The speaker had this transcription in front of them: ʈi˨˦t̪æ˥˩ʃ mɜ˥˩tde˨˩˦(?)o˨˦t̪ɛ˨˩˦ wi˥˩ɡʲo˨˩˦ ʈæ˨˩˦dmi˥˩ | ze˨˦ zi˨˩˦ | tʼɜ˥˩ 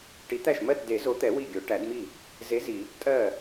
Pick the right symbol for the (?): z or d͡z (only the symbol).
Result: z